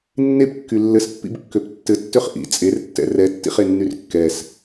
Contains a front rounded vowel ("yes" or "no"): yes